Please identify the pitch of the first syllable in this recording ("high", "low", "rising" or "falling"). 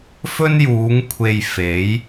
high